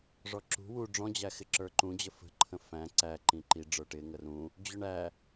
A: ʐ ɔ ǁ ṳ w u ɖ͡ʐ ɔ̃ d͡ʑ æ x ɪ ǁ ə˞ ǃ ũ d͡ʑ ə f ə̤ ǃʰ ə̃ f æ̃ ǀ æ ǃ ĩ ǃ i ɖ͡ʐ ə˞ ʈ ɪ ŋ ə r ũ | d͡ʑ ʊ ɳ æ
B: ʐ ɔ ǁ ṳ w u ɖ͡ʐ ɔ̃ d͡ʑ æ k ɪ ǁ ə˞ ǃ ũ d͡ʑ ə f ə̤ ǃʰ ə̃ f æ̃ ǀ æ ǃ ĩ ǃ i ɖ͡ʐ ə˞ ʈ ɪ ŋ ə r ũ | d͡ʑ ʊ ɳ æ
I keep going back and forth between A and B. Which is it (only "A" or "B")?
A